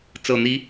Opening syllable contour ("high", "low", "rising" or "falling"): low